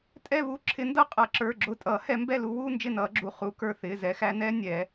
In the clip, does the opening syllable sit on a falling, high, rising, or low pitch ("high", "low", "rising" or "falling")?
falling